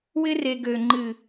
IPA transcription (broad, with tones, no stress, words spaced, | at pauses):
wɪ˦re˨ ɡø˨ ŋ͡ǃɨ˨